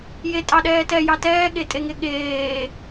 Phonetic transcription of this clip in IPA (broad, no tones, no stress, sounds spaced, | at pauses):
j e tʼ ɑ ɗ ɛː t ɛ j ɑ t ɛː ɠ e tʼ e ŋ e ɠ eː